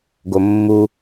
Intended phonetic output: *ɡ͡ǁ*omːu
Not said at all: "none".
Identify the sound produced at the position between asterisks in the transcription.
ɡ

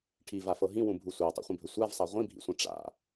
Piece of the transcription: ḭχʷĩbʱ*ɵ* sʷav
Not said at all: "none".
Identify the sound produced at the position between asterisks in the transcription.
ɵ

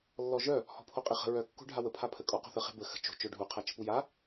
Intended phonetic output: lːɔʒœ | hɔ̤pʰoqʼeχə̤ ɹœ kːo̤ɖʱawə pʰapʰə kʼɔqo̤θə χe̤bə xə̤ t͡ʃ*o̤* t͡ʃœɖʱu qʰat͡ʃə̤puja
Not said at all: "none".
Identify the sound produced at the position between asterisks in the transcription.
o̤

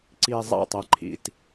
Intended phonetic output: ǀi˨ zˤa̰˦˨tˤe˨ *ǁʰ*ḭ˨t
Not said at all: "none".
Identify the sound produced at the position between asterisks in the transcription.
ǃʰ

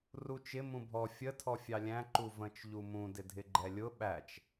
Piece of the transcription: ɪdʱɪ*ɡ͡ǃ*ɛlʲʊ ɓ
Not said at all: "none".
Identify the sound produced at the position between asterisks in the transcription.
ɡ͡ǃ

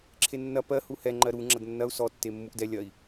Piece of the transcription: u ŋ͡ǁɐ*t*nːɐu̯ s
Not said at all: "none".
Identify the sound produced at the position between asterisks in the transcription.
d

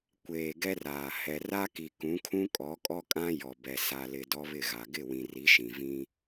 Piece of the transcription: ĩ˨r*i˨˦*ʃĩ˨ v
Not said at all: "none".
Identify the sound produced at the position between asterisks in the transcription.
i˨˦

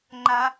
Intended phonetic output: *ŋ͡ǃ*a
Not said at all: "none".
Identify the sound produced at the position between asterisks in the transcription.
ŋ͡ǃ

